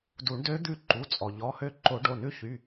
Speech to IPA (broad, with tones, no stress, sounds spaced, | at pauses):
d u˨˩˦ ɳ d ø˧˥ d̪ ʉ˦˨ ǃ u˩˧˩ t͡sʼ ɔ˩ ʎ ɔ˩˧˩ h ø˦˨ ǃ o˨˩˦ ɖ o˩˧˩ n ʉ˧˥ ç y˩˧˩